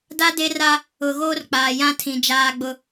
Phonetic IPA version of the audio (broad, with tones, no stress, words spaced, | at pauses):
da˦de˦ra˦ | ʊ˨ɣoː˦rk͡paː˨ jã˦tʰĩ˨ d͡ʒaː˦ɡ͡bʊ˦